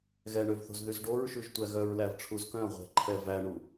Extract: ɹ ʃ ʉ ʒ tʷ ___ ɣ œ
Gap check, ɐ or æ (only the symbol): æ